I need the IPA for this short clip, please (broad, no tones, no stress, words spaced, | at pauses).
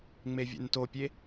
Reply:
ŋ͡mevʲɛ̰ntopʲe